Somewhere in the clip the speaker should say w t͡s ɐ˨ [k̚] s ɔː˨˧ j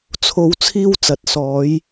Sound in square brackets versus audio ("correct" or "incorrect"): incorrect